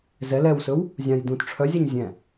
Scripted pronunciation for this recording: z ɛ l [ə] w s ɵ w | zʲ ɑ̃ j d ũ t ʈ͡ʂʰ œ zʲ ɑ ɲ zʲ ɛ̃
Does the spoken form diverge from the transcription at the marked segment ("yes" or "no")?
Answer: yes